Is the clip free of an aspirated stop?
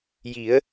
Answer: yes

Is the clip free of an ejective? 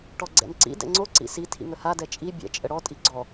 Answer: no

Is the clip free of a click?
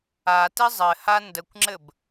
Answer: no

